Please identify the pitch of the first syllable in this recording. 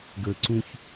low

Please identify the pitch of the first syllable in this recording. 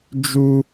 high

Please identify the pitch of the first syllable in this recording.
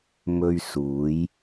high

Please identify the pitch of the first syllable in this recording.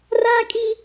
high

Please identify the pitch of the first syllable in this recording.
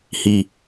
low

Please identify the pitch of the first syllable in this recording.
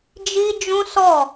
high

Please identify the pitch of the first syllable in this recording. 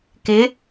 rising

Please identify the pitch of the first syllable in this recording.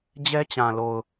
high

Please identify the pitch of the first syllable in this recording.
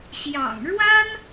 low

